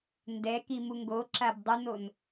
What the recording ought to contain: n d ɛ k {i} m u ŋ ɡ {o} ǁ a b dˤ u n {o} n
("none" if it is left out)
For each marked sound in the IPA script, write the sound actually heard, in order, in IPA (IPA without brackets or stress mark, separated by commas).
i, o, o